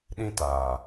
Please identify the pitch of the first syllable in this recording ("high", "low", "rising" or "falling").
high